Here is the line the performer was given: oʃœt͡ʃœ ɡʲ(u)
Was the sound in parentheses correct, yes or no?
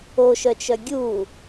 yes